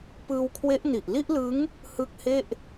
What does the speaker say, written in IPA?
p ɯː˧ w kʰ w e˦˥ ʔ n i˨˩ ʔ l i˥˩ ʔ l ɯ˦˥ ŋ | h ɯ˦˥ k̚ h e˥˩ ʔ

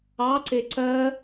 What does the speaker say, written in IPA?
ɑ ǀ e ǀ ɜ

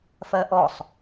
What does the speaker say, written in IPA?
f ɜ ʔ ɔ sˤ

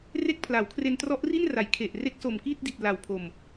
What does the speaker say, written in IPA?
r e˥˩ k̚ pʰ l a˩˦ w kʰ r e˧ n t r ɔ˦˥ ʔ r i˥˩ n r a˩˦ j kʰ e˨˩ ʔ r e˦˥ k̚ s o˨˩ m k iː˥˩ t̚ d i˨˩ t̚ l a˨˩ w pʰ o˨˩ m

